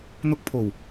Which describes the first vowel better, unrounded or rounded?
rounded